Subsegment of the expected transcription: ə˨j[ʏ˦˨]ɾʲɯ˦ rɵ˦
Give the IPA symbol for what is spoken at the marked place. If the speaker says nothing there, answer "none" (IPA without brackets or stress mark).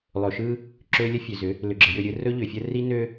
ʏ˦˨